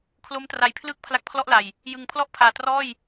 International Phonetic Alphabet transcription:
kʰ l o˦˥ m t r a˨˩ j pʰ l ɯː˥˩ k̚ pʰ l a˦˥ k̚ pʰ l ɔ˥˩ ʔ l a˨˩ j | j ɯ˨˩ ŋ pʰ l ɔ˥˩ ʔ pʰ aː˨˩ t r ɔː˥˩ j

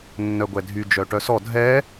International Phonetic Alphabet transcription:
nː œ ɡʷ ɛ dʱ y d͡ʒ œ ʈ œ s ɔ dʱ ɛ

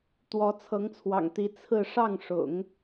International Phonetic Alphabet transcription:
t̪ w ɔ˧˥ t͡sʰ ɤ˧˥ ŋ t͡sʰ w ɑ̰˨˩ ŋ t̪ i˧˥ t͡sʰ ɹ̩˥˧ ʂ ɑ˥˩ ŋ ʂ ʊ̰˨˩˦ ŋ

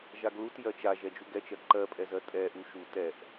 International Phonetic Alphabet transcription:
ʒ a ɡ l u t j ɜ t͡ʃ a ʒ ɛ d͡ʒ u ɡ ɛ t͡ʃ ɜ ǃ ɜ pʼ ɛ z ɜ tʼ ɛ ʔ u ʃ u t ɛ ʔ

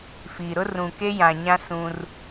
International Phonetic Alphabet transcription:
f iː˨ ɾ ʊ˦ r ũ˨ k e˦ j ã˨ ɲ ã˦ s ũ˦ r

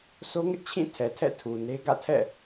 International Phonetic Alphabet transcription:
s o˦ ŋ ɪ˦ ʔ t͡ɕʰ ĩ˦˨ tʰ ɛ˨ tʰ ɛ̰˦˨ tʰ u˨ n e˦ ɡ ä̰˦˨ tʰ ɛ̰˦˨

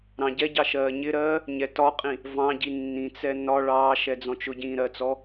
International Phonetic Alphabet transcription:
ɾ ɑ̃ ɟ ɛ ɟ ɑ ʃ ɜː ɲ ɪ ɾ ɜː | ɲ ɛ t ɒ qʼ ĩ | v ɑ̃ ɟ i nː ĩ t͡s ɛ n ɒ ɭ ɑː ʃ ɛ d͡z ɔ̃ t͡ʃ ʊ ɟ ĩː ɾ ɜ t͡s ɔ

